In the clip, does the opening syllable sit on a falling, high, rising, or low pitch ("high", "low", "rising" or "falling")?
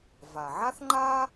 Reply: low